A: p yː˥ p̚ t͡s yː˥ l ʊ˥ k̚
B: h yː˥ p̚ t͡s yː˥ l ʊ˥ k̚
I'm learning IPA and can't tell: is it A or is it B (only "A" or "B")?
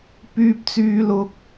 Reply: A